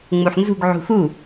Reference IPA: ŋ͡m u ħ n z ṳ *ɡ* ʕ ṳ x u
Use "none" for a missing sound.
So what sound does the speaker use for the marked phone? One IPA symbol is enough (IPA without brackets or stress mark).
ɡ